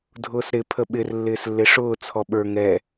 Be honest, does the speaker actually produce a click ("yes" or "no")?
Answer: no